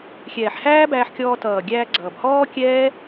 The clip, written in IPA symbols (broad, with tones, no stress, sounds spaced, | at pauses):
xʲ ɛː˨ ħ h æː˦ b æː˧ ħ kʲ ɔː˧ t ʌː˨ ɡʲ æː˧ ɡ͡ǀ ʌː˨ b h ɔː˦ kʲ ɛː˦